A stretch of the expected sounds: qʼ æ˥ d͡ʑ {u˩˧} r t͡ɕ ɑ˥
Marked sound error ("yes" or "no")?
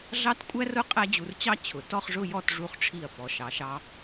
yes